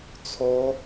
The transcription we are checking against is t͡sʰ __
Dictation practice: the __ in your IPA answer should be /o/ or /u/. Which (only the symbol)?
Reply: o